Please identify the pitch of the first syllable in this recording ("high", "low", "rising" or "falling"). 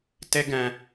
high